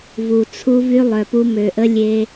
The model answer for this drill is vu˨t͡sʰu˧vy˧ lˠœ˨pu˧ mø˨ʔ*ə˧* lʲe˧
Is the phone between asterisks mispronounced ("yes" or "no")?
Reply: no